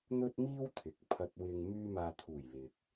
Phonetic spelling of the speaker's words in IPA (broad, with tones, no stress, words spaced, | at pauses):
n̪ɵ˥t̚miː˥w t̪ʰɪ˨˥k̚ pʰɐ˨t̚wɪ˨ŋ myː˧maː˨t̪ʰuː˨˩j lɪ˨k̚